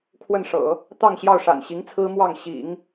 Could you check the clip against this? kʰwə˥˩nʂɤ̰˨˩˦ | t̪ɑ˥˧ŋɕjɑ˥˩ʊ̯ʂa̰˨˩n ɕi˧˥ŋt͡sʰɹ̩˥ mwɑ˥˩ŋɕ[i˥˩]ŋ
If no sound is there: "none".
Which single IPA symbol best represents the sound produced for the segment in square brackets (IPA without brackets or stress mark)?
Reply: ḭ˨˩˦